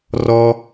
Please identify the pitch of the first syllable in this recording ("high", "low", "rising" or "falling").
high